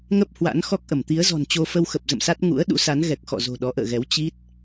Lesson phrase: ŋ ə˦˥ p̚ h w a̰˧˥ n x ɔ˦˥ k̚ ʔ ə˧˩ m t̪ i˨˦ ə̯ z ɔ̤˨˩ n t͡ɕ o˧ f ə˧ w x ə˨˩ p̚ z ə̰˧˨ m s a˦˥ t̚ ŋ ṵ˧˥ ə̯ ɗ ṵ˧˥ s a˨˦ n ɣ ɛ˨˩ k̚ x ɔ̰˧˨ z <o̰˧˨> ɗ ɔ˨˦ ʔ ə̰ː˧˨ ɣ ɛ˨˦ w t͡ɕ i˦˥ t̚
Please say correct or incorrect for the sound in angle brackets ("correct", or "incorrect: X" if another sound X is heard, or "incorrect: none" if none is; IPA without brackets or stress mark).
incorrect: o̤˨˩